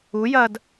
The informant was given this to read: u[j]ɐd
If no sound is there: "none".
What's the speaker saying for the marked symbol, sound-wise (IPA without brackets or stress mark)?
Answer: j